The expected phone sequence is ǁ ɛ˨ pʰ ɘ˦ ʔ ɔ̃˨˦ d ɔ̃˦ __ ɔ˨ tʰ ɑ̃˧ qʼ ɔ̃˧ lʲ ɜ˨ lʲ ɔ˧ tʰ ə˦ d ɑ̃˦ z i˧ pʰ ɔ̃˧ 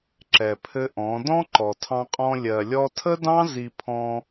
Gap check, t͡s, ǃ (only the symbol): ǃ